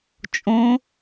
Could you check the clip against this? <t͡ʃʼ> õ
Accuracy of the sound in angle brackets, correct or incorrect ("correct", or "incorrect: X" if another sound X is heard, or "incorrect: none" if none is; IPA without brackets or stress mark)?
correct